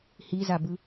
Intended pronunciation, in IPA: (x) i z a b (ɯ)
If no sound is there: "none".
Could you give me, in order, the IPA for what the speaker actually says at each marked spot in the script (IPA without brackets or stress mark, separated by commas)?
h, ɯ